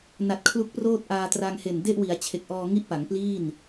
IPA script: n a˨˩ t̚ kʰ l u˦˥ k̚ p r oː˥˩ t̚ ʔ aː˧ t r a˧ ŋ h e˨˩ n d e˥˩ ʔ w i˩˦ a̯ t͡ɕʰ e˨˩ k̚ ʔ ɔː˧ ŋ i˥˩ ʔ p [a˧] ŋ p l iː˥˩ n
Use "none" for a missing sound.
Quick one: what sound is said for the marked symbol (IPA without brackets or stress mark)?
a˩˦